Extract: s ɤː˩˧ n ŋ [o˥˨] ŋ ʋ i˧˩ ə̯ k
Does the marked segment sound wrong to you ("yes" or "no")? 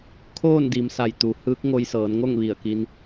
no